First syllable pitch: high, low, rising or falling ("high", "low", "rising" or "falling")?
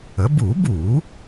rising